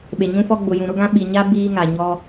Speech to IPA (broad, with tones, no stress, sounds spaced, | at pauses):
ɓ e˨ ɲ ũ˦ f ɔ˦ ɡ͡b ʊ˨ j ũ˨ ɾ ʊ˦ ɡ ã˦ ɓ i˨ ɲ a˦ b iː˦ ŋ a˨ ɲ ɔ˦